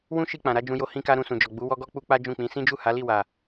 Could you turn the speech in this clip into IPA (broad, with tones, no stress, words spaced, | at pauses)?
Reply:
wũ˦ ʃi˧ k͡pã˨ɾa˨˦d͡ʒũ˧jo˧ hĩ˧ka˧ ɾũ˧sũ˨d͡ʒɔ˨ ɡ͡bu˨˦ wɔ˦ɡɔ˦ k͡pu˦k͡pa˦d͡ʒũ˦˨k͡pĩ˨˦ sĩ˦d͡ʒu˦˨ ha˨˦li˦˨wa˨